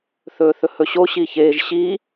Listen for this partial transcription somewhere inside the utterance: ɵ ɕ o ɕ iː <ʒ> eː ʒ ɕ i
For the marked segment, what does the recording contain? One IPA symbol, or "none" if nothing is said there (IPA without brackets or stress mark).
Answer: ç